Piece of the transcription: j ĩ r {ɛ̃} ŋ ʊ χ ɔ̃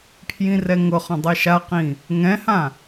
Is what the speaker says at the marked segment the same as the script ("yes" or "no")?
no